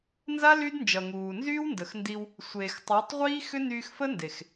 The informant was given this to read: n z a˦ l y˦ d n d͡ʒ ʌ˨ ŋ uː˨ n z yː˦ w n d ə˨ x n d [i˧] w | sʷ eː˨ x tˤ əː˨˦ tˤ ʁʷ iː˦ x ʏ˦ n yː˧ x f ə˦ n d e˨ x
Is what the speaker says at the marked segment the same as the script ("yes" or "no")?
yes